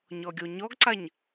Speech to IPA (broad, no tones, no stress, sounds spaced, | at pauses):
ɲ ɔ ɡʲ o ɲ ɔ ɡ ǀ a ɲ